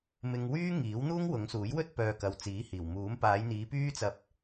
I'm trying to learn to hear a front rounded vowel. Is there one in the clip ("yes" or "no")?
yes